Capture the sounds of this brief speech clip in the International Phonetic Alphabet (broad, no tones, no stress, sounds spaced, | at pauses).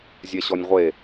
zʲ ɛ ɕ ɔ nʲ ʁʷ e